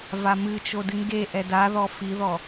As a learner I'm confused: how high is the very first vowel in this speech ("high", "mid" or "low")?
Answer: low